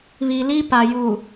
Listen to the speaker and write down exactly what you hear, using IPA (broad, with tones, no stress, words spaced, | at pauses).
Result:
βi˨li˦ pa˨ juː˨